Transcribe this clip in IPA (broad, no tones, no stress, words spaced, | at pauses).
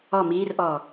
ɔ miːrʔɔː